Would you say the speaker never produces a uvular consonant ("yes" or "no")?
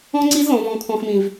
yes